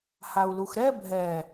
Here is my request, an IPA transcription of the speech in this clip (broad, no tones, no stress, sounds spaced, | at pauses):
h a u̯ l u x ɾ ɛ bʱ ɛ